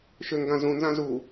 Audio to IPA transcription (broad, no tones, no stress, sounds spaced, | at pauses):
ʃ ʏ ŋ ɡ ã z ũ n z ã z u